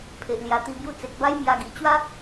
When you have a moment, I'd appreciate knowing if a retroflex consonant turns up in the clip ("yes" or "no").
no